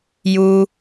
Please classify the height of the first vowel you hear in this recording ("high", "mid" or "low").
high